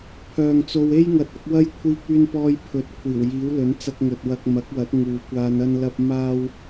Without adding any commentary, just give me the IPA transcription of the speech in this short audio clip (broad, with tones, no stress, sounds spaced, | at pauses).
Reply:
pʰ œː˨ ŋ t͡s o˧ w e˥ j ŋ ɐ˨˥ t̚ ɐ˨˥ k̚ w ɐ˥ j kʷʰ iː˧ k̚ yː˧ n p ɔː˧ j pʰ ɵ˨˥ t̚ kʷʰ iː˨˩ w j iː˨˥ w l ɵ˨˥ n t͡s ɐ˥ k̚ ŋ ɵ˧ t̚ w ɐ˧ k̚ m ɐ˨˥ k̚ w ɐ˨˥ t̚ ŋ uː˨ kʷ aː˧ n ɐ˥ n l ɐ˥ p̚ m aː˥ w